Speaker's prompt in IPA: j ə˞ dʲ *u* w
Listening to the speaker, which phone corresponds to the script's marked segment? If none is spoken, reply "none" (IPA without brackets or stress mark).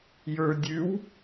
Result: ʉ